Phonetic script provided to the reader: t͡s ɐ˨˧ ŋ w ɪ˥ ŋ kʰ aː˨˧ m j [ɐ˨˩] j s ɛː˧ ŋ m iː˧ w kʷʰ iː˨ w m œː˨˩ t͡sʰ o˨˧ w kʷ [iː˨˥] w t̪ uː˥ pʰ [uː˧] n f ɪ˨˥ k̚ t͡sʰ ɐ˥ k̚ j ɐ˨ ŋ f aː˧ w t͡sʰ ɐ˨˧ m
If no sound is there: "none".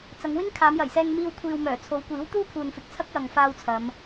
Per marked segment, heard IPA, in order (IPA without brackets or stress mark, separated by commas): ɐ˨˩, iː˨˥, uː˨